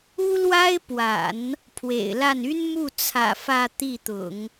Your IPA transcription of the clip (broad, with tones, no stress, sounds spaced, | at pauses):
u˥ l w a˥ ɪ̯ p w a̰˨˩˦ n | pʰ w ḛ˨˩ ɪ̯ l a˥˩ n y˥ n m u˥˩ t͡sʰ ä̰˨˩ f ä˥˧ t̪ i˥˩ t̪ ʊ̰˨˩˦ ŋ